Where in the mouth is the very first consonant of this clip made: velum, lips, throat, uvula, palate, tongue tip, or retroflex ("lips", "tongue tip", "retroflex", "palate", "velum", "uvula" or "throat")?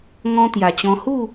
velum